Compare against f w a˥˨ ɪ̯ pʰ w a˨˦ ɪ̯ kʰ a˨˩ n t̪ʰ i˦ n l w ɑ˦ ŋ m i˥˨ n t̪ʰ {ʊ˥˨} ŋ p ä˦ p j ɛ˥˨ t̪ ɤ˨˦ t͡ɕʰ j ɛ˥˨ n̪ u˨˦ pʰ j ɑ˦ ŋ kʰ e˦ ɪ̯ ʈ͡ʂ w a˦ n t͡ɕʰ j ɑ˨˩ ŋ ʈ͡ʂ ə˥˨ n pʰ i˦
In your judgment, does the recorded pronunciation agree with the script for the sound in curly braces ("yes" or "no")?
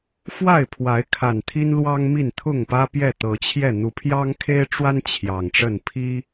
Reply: yes